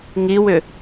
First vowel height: high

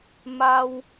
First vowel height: low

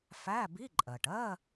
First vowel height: low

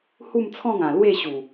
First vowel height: high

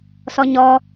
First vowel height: mid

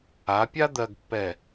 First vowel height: low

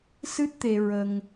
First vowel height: high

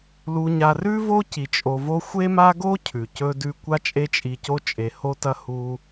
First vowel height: high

